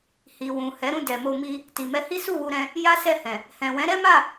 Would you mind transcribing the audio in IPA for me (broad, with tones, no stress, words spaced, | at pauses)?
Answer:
hi˨ wũ˨ hɛ˨˦ɾũ˦˨ dɛ˨mo˧mi˧ | ti˨mɛ˧hi˦ su˦˨wu˧ɾɛ̃˧ | ja˦sɛ˦˨hɛ̃˨ | hɛ̃˨wɛ̃˨˦ ɾɛ˦ma˦˨